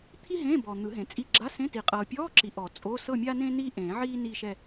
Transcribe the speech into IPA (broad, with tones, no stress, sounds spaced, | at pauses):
t̪ʰ i˥ ɦ ẽː˧˥˧ b ɔ˨ n̪ ɯ˨˩˦ ɦ ẽ˨ t͡sʼ i˧˥˧ ɡ͡ǁ a˧˥˧ s ẽ˧˥˧ t i˨˩˦ qʼ ɤː˨ pʲ ɔː˧˥˧ ǁ i˨ ʔ ɔ˨˩˦ t͡sʼ o˧˥˧ s ɤ˥˧ mʲ a˥ n ẽː˥ n iː˥ ʔ ẽː˨˩˦ ʕ iː˥ n iː˥˧ ʃ ɛ˥˧